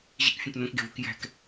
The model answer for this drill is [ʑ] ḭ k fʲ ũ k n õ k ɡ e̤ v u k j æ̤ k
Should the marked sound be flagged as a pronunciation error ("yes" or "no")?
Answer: no